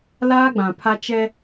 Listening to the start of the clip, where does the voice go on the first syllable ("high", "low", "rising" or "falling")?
high